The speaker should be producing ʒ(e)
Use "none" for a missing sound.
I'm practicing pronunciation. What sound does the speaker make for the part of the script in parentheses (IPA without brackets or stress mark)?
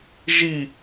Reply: i